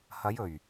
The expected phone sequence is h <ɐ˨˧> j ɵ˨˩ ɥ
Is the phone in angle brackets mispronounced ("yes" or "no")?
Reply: no